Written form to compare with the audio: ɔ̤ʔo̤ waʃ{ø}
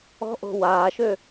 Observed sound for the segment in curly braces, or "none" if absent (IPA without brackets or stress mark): ø